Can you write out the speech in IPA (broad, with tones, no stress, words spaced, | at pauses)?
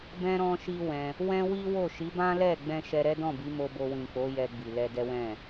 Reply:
bɛ̃˦ ɾɔ̃˦ʃi˦ wɛ̃˧ | wɛ̃˦wi˦wo˦˨ ʃi˨˦bã˦lɛ˦˨ ɡ͡bɛ̃˧ ʃɛ˧ɾɛ˦dɔ̃˦˨bi˨˦ mo˧bo˧wĩ˨k͡po˨˦ jɛ˧ɡ͡bi˨lɛ˧dɛ˦ wɛ̃˦˨